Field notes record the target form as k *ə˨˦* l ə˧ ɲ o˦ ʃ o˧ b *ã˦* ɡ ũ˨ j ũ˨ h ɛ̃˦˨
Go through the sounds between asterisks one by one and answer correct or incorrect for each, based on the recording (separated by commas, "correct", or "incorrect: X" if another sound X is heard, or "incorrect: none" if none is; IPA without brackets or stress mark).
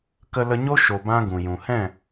incorrect: ə˧, correct